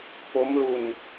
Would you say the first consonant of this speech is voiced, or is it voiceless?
voiceless